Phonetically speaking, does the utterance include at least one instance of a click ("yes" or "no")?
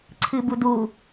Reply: yes